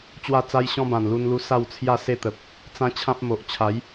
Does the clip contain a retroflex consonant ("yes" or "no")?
no